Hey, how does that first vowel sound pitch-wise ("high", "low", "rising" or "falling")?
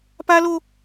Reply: high